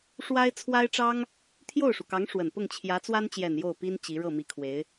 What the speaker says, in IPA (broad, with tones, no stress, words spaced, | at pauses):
ʂwa˥ɪ̯ t͡sʰwa˥ɪ̯ʈ͡ʂɑ˥ŋ | t̪ʰjo˥˩ʊ̯ʂu˩kɑ˧˥ŋ ʂwə˨˩npʊ˥˩ŋ t͡ɕʰjä˧˥t͡swa˥nt͡ɕjɛ˨˩n jo˥˩ʊ̯pi˥n t͡ɕi˧˥ɻɤ˥˩ mi˧˥kʰwe˧˥ɪ̯